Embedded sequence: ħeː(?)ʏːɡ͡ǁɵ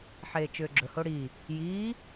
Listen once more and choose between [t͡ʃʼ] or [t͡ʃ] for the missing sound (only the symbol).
t͡ʃ